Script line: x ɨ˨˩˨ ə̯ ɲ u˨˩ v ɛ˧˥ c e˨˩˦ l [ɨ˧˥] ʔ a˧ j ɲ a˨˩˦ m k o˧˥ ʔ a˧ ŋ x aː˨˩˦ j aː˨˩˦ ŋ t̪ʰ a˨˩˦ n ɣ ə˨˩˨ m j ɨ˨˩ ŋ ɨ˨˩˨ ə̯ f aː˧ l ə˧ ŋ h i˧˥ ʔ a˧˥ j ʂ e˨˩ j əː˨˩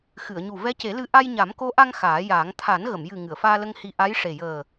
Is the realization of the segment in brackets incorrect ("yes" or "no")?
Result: no